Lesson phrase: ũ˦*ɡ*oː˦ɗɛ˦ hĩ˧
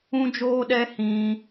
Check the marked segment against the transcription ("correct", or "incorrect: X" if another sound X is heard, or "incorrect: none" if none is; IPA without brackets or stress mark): incorrect: d͡ʒ